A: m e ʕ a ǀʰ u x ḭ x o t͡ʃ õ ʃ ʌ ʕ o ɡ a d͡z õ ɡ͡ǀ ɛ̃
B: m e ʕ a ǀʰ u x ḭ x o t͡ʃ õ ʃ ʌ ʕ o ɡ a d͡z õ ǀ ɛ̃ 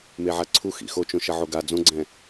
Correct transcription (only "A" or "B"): A